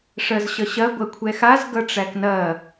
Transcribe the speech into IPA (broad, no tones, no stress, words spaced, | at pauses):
ʂɜzɕʌɕɐ ɡʷɐkʷʰɛxaz ɡʌʈ͡ʂæknɐ